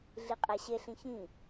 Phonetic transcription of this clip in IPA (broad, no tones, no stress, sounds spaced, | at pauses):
ɮ i qʼ æ ɕ e ɬ ĩ ç ĩ